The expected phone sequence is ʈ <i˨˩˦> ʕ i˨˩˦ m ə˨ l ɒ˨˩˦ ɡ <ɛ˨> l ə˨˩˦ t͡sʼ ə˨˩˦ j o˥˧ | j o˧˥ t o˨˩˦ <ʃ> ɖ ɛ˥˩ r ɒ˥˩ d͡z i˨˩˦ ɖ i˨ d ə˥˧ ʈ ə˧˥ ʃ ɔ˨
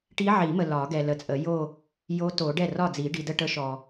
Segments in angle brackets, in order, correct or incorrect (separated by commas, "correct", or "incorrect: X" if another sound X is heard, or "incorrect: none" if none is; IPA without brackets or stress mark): incorrect: i˧˥, correct, incorrect: none